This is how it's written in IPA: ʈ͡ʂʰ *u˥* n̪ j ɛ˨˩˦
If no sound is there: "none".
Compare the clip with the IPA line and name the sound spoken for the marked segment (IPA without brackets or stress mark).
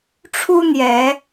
u˥